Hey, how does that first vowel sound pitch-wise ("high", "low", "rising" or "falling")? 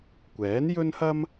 rising